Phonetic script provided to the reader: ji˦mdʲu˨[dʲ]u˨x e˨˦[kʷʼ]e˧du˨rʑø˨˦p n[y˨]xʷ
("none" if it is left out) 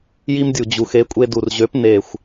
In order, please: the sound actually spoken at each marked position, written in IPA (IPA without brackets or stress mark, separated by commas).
d͡ʑ, kʷʼ, e˨